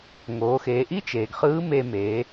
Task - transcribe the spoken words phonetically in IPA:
ŋoː˩˧xeː˩˧ ʔi˥t͡ʃeː˩ɡχɯː˧˥ me˧meː˩˧

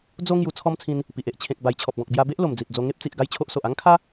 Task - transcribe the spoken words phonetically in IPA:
d͡zo˦ ŋju˧t͡sʰɔ˦mt͡sʰĩ˧n | pi˨ʔe˨ʔ t͡ɕʰẽ˨k̚ ba˨˩jt͡ɕʰɔ˨p̚ɡɔ̃˨k̚ bja˧be˦ʔ lo˨˩md͡zi˨t̚d͡zo˧ ŋe˦p̚t͡si˨ʔ ɡa˥˧jt͡ɕʰo˦ʔso˨ʔ a˦ŋkʰa˦

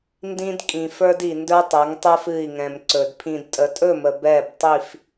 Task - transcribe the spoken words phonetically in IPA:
ndĩ˦d kʼĩ˨ fə˞˦di˨ ndə˞˦tˤɛ˨˦ŋtˤə˞˦f ɨ˦˨i̯ŋɛ̃˨m ǀɵ˨d pʰĩ˨dtʼə˨tʼɵ˦˨mə˨ bɛ˦˨btˤi˦˨f

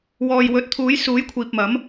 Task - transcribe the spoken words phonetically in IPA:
wɔː˨jwɵ˨˥t̚ t̪ʰuː˨˧jsuː˨˧jkʷʰiː˨p̚mɐ˨˧m

